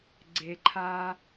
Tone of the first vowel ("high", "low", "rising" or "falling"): low